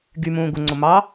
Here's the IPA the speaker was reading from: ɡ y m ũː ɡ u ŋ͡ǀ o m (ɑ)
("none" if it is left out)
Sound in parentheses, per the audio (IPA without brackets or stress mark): ɑ